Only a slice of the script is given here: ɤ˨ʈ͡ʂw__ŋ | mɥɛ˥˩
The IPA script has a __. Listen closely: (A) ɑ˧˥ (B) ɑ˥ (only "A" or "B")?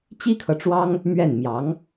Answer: B